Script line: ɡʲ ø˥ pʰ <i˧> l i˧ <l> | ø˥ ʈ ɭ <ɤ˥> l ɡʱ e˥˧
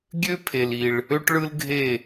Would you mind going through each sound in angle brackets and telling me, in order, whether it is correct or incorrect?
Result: incorrect, incorrect, incorrect

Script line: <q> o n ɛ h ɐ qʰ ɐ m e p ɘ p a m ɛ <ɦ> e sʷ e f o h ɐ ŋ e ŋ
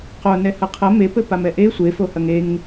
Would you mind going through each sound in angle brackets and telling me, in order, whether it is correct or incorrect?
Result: correct, incorrect

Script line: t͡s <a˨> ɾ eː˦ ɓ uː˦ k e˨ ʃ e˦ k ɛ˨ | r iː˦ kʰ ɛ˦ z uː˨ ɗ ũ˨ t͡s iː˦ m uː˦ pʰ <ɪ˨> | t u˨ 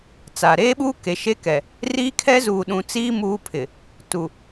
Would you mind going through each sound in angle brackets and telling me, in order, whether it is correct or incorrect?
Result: correct, correct

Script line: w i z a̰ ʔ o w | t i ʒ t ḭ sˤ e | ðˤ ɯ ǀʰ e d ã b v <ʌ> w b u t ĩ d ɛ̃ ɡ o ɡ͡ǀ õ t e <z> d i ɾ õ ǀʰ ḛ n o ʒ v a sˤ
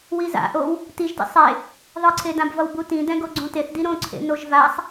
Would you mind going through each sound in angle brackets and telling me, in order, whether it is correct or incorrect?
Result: correct, incorrect

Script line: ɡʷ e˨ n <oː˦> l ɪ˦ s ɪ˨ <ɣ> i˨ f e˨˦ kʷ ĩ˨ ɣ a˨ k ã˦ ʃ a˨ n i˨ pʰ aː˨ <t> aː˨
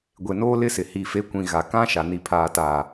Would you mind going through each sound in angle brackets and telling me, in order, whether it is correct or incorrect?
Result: correct, incorrect, correct

